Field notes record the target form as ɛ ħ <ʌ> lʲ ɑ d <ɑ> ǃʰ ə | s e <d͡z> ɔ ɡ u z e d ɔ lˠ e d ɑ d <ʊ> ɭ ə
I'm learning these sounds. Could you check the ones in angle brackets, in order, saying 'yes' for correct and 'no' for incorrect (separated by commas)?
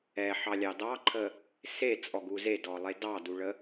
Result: no, yes, no, no